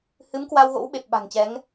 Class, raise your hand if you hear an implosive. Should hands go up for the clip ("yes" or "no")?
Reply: yes